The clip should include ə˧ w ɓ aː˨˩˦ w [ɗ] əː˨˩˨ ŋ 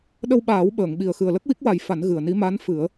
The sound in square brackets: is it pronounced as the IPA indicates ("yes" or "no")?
no